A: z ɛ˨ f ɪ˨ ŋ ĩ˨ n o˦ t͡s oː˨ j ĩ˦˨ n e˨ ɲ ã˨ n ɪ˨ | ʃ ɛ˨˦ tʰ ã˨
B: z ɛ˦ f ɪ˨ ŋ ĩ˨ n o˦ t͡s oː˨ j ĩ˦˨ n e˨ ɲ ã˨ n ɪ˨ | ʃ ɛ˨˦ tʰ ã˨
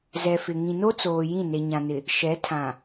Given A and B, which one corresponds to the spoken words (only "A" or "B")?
A